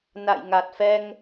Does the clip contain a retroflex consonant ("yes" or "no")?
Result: no